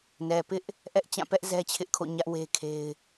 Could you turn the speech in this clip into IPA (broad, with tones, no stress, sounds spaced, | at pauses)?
n ɛ˨ p ɪ˦ ʔ | ʔ ɛ˦ ʔ t͡ɕ ã˦˨ p ɛ˦ ʔ z ɛ˦ t͡ɕʰ ɪ˦ ʔ kʰ o̰˦˨ ɲ ä˦ ʔ w e˦ kʰ e˦ ɪ̯